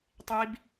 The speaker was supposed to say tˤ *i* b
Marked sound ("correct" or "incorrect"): correct